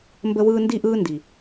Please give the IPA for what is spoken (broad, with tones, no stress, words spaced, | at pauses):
mbə˦wɯː˦ ndi˦ʔɯː˦ndi˨